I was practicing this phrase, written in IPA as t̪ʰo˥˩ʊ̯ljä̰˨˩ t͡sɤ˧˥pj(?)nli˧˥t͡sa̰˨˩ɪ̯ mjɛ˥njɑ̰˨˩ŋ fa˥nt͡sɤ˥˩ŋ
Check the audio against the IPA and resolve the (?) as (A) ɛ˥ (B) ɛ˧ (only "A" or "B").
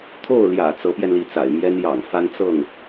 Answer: B